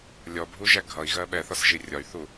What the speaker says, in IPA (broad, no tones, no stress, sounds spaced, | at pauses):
lʲ ɔ bʱ u ʒ æ ɡʱ ʌ i̯ ɣ ɜ ɓ ɛ θ ɒ s ʒ i rʲ ɒ y̯ θ u